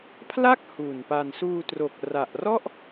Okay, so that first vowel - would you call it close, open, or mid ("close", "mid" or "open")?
open